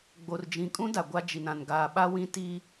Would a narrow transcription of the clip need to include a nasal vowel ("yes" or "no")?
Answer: yes